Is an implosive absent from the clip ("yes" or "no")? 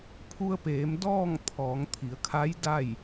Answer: yes